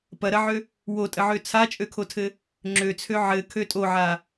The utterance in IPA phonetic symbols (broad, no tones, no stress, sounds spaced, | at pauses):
p ɐ ɾ ɐ ʕ ø | w o tʼ ə ʕ ø t͡sʰ a t͡ʃʼ ø kʰ o tʰ ɘ | ŋ͡ǁ ø t͡sʰ ø ʕ ɘ kʰ ø tʼ o ʕ a